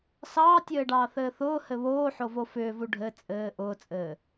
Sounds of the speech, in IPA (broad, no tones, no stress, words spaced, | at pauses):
sɑːtʲɘːɖɑːθɘː θʊːhɘ βoːħovo fʏːvu ɖʱɘ t͡sʼɘː ʔʊːt͡sʼɘː